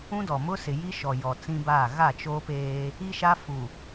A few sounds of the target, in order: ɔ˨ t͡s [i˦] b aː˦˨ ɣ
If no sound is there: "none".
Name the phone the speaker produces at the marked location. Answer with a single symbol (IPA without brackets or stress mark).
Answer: ĩ˦